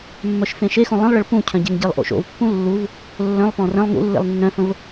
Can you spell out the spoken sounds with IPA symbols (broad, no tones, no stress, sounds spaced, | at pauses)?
mː œ ʃ f ẽ ʃ e x õ lˠ ə̃ lˠ ɭ ə ɭ p ũ cʰ œ̃ ɟ e ŋ ɟ e lˠ ʔ o̰ ʃ o̰ v pː ũ lː u v | lː œ̃ lˠ p ɔ̃ r ə̃ lˠ ŋ ṵ lː ḛ lˠ nː œ̃ f ə̃ v